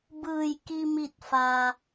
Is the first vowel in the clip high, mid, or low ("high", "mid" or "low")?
high